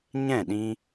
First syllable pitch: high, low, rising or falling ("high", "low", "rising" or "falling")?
falling